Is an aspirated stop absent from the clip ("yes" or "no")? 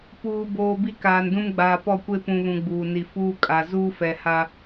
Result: yes